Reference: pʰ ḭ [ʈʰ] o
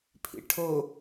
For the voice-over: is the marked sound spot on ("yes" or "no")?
yes